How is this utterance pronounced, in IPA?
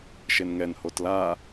ʃenŋɛn hotla

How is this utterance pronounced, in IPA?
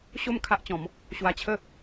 ɕo˥˧m kʰa˦ʔt͡ɕɔ̃˨˦m | ɕwa˧t͡ɕʰə˥˧

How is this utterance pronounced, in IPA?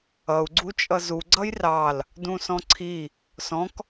ʌu̯ɡ͡ǀu t͡ʃʼʌzu ɡ͡ǀʌjrɑl | dũsɔ̃ǀʰi | sɔ̃k

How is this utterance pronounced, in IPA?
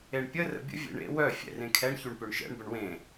eɳpʲə rə̰bʲə̰ vʲḛɳḛ wœ fʲɛ̰rẽkʰɛɳ çyɳpøɳʃɛ̰ɳ bəɳwẽ

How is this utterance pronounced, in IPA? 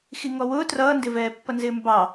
xiŋɔwʊː trʌːndɪvɛːpːʌ nzɪːmbɑ

